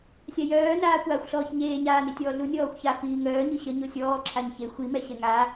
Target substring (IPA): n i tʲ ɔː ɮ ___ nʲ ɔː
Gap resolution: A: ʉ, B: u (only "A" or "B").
B